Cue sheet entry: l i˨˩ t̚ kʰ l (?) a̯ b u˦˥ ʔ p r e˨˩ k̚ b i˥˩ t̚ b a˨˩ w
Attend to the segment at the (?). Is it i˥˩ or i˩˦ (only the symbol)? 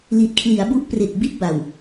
i˩˦